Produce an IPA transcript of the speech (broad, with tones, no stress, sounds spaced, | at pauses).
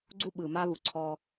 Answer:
ɡ͡ǀ u˧ ɓ ɯː˨ m a˧ β u˨ ǀʰ ɔː˧